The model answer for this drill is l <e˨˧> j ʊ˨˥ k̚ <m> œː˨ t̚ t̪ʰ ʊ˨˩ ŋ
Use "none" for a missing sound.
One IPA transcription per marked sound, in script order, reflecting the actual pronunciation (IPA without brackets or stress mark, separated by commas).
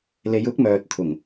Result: e˨˧, m